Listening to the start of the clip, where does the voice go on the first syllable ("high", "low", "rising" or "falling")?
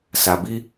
low